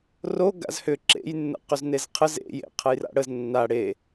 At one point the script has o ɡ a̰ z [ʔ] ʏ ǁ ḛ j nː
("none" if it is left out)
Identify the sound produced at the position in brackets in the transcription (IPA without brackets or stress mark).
h